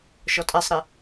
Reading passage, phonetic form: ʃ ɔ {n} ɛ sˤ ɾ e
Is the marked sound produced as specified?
no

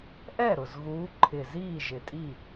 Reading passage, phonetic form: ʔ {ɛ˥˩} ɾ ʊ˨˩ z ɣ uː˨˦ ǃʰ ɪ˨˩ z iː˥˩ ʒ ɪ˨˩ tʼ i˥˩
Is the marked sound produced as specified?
yes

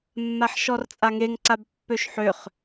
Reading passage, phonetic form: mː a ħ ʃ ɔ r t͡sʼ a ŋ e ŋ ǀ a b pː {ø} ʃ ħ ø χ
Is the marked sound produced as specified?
yes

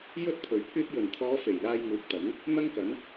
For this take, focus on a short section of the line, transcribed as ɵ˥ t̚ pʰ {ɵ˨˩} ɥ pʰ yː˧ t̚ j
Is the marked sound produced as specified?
yes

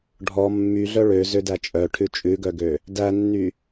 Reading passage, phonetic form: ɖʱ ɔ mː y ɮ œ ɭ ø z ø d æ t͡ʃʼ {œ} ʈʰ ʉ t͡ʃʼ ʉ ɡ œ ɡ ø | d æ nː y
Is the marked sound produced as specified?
yes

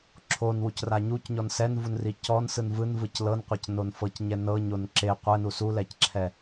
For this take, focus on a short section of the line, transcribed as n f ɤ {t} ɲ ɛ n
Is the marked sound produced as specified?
no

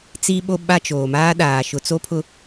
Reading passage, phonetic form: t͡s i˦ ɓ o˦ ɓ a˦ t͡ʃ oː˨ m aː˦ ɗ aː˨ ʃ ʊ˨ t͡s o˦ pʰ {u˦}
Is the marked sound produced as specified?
no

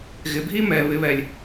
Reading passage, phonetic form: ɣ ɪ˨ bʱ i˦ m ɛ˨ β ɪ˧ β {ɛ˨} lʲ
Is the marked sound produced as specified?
yes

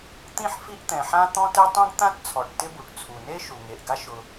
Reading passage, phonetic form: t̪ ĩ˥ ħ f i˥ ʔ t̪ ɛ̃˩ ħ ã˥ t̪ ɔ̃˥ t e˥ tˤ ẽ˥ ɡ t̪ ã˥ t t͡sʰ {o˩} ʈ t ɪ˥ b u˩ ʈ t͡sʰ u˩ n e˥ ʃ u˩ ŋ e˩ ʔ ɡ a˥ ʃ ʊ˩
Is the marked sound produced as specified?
no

